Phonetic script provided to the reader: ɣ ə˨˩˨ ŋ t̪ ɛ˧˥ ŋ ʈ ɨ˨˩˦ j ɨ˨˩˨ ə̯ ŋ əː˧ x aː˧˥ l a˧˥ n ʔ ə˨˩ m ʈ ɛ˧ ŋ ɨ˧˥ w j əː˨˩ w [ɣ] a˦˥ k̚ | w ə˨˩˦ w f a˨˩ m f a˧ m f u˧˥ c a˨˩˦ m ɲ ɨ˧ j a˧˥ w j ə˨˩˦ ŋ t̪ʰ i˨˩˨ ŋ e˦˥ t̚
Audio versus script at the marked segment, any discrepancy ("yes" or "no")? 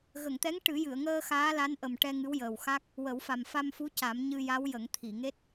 yes